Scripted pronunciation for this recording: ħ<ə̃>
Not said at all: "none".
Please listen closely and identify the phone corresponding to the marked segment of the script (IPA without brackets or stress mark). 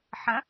ə̃